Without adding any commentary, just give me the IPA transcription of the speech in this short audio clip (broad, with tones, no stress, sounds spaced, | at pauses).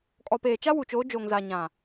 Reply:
kʼ ɔ˨ p eː˨ t͡ʃ a˦ w u˨ t͡ʃ oː˨˦ d͡ʒ oː˨ ŋ z a˨ ɲ ã˨